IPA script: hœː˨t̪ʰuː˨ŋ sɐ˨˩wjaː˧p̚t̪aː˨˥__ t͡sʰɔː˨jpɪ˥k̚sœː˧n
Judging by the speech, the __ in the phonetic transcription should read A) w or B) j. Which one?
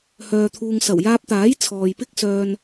B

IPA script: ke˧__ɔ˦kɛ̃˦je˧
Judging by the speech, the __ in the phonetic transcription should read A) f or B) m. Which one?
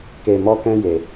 B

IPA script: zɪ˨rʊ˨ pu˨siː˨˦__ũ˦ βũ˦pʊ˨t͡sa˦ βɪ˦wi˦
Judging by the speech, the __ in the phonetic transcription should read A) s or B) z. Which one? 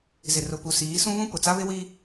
A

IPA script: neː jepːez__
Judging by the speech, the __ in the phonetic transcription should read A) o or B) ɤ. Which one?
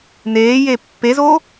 A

